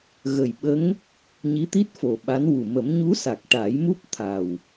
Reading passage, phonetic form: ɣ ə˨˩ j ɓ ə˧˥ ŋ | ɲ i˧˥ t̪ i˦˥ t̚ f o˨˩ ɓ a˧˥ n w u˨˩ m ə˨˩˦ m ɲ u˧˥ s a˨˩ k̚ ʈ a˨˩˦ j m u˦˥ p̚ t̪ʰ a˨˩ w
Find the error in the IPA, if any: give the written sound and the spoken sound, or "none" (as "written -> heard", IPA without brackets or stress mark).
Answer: none